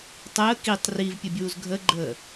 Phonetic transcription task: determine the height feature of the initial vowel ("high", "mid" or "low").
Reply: mid